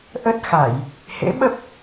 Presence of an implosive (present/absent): present